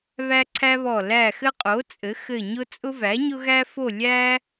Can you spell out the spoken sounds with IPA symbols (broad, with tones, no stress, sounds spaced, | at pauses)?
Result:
β æ˦ ǀʰ æ˦ β ɔ˧˩ l æ˧˩ x ɘ˦ qʼ o˩˥ t͡sʼ ɘ˩˥ x ɘ˧˩ ɲ ʊ˦ t͡sʼ ʊ˦ v æ˩˥ ɲ ʊ˦ ɣ æ˦ f o˥˨ lʲ æ˦